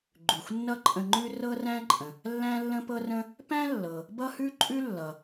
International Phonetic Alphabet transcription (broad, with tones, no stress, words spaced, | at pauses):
ɡ͡ǃʉ˩xʷnːʌ˥ǃʼə̃˧ŋ͡ǃʉ˥ rɤ˥ræ̃˥ǃʼə̃˩ | lːæ̃˥lːə̃˥pɤ˥rə̃˥ | pæ̃˥lːɤ˩ | bʌ˥hʉ˥ǃʼʉ˥ lːʌ˩